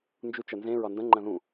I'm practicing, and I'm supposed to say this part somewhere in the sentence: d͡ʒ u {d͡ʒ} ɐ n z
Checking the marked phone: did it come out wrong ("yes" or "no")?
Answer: yes